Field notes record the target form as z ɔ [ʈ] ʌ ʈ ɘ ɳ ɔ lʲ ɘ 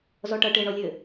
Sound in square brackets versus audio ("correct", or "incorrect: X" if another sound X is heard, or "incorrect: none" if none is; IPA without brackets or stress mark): correct